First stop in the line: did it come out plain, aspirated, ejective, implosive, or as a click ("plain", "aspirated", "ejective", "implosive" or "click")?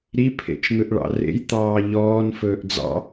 aspirated